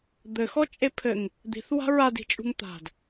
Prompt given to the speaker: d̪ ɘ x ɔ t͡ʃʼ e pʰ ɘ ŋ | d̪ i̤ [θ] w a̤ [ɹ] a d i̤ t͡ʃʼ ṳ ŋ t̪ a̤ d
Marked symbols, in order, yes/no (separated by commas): yes, yes